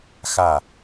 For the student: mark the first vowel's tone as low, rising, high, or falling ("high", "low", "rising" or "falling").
falling